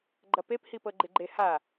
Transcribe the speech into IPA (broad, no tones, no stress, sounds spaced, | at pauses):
ɡ͡ǃ ɐ p e p h i p ɤ ɡ͡ǃ ɪ ɡ͡ǃ e h a